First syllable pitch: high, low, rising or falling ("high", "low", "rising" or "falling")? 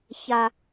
high